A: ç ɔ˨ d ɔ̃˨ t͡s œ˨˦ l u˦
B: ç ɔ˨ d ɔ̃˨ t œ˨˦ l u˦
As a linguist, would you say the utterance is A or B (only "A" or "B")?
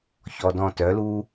B